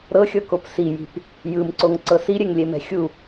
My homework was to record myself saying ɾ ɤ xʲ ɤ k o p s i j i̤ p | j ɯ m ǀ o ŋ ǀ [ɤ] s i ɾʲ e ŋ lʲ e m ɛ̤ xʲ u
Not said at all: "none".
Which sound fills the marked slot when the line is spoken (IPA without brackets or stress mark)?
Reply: ɤ